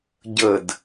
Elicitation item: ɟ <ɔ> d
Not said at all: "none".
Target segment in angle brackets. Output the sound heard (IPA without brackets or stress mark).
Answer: ə